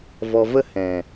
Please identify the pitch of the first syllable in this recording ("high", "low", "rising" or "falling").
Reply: low